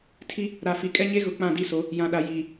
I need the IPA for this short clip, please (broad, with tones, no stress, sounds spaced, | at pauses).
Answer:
tʰ i˦ | ɾ a˨ f i˨ kʼ ɛ˦ ɲ e˦ ɣ ʊ˨ k͡p ã˦˨ d i˦˨ s o˨˦ | j ã˨ ɗ a˨ j iː˨